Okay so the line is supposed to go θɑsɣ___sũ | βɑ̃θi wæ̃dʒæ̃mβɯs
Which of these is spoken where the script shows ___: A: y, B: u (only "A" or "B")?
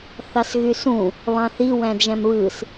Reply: A